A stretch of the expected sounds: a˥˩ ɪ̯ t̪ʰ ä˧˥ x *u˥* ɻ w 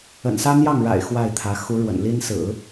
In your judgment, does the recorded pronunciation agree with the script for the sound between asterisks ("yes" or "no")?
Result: no